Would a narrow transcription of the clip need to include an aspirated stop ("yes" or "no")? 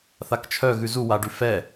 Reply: yes